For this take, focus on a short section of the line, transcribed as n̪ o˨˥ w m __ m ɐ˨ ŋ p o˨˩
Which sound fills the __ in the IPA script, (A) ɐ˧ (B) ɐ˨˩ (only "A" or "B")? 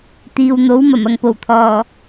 B